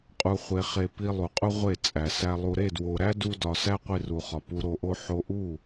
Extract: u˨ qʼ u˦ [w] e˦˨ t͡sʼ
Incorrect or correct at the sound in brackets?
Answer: incorrect: ʁʷ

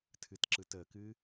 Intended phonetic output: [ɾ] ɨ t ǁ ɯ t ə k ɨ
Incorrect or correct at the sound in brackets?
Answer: incorrect: tʰ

